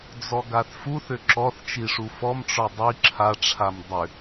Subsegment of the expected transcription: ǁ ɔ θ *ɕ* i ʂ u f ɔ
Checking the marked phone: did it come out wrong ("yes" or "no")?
yes